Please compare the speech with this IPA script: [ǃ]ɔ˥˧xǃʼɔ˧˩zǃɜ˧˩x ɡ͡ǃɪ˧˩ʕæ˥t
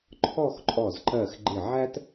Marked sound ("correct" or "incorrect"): incorrect